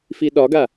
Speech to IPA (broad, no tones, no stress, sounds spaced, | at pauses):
f i ɗ ɒ ɡ a